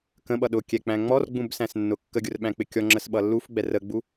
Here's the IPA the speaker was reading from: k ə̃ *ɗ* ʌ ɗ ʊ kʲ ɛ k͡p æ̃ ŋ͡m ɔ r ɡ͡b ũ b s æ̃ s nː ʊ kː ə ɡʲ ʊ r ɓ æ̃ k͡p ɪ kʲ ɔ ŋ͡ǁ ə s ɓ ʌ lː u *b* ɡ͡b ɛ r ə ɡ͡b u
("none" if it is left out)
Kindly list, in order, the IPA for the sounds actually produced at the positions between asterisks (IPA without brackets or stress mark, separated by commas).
ɓ, f